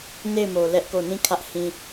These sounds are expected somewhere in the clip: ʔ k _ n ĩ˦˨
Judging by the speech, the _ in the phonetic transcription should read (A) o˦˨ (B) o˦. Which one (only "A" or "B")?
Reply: A